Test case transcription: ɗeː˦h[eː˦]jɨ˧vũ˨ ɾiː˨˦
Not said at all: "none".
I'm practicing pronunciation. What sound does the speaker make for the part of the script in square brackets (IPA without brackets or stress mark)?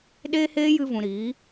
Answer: eː˦